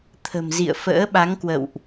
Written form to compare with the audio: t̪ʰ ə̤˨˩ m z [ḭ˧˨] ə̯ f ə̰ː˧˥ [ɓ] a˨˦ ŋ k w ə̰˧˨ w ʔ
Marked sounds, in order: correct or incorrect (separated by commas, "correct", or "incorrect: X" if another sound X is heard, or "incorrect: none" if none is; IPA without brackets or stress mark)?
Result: correct, correct